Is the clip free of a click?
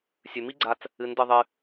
no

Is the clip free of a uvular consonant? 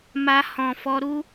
yes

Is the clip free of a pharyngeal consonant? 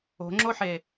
no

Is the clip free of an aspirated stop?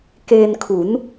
no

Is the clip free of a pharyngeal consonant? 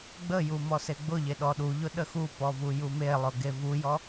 yes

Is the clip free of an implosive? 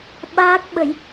no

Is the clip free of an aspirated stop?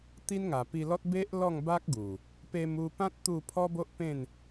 no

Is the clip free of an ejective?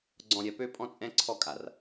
no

